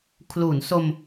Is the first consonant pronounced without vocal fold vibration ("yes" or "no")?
yes